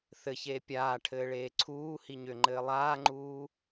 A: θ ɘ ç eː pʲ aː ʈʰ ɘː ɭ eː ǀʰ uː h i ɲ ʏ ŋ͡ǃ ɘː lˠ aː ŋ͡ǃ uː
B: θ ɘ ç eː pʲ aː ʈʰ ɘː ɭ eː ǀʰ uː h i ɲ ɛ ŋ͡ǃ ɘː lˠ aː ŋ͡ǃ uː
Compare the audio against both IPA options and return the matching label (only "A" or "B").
A